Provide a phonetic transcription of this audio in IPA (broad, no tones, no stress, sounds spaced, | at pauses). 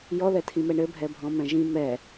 j ɔ ð ɛ tʰ ĩ m ɛ ɳ ɘ bʱ ɛ bʱ ɔ̃ m ɛ̃ ʒ ĩ m ɛ